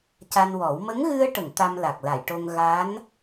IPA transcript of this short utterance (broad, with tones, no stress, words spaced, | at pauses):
ca˧nwɔ˨˩˦w mə˧˥ŋɣɨ˧ə̯ʈə˨˩˨ŋ t̪a˧mla˨˩k̚la˨˩˨jʈo˧ŋ ɣa˧˥n